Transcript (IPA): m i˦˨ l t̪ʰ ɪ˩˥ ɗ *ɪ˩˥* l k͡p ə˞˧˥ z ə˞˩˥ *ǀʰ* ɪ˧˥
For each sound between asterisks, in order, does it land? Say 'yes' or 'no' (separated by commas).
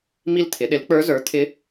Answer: yes, no